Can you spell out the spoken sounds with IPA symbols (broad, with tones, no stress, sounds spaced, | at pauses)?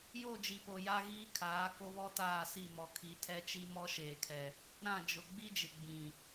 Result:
j o˦˨ d͡ʒ i˨ p o˨ j a˦ ɣ iː˦ kʰ aː˨˦ k o˦ β ɔ˦ t aː˦˨ s i˦˨ m ɔ˨ kʰ i˨˦ tʰ ɛ˦ t͡ʃ i˦ m ɔ˦ ʃ eː˨ kʰ ɛ˨ | ɾ ã˦˨ d͡ʒ ʊ˨ ɡ͡b i˦ d͡ʒ ɪ˨ ɡ͡b ĩ˨